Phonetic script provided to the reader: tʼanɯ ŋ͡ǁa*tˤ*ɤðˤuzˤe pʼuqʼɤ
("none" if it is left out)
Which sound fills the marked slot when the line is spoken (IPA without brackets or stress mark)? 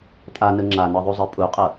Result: n